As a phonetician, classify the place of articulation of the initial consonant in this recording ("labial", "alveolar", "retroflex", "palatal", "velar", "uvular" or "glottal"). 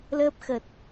alveolar